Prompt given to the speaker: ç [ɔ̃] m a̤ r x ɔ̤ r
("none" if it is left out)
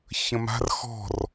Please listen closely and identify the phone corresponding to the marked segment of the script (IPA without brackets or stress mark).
ə̃